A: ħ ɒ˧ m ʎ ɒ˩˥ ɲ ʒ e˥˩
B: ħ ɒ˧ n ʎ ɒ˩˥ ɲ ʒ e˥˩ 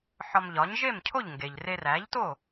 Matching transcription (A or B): A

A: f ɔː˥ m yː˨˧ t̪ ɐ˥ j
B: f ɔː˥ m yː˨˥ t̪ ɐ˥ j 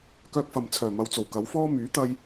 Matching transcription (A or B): B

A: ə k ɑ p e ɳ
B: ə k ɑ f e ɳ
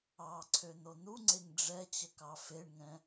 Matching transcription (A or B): B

